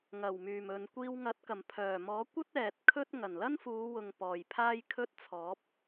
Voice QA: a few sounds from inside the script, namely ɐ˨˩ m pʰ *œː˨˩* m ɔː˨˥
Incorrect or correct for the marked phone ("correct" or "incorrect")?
correct